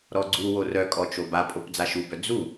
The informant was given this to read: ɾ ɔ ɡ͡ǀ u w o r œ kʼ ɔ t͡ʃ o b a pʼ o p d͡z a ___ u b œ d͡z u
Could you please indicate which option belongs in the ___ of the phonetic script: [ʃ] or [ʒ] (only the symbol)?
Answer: ʃ